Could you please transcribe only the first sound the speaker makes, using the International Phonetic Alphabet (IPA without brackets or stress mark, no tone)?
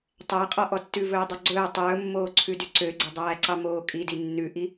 tˤ